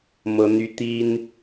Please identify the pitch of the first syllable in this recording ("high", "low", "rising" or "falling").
high